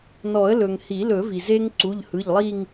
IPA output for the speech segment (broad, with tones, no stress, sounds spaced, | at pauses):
n ɔ˨˩˦ ə̯ l ɵ˩ ŋ h i˨˩˦ l ɵ˨˩˦ v i˩ z e˦ ŋ ǀ u˩˧˩ ʎ h ɯ˩˧˩ ʎ lˠ i˦˨ ŋ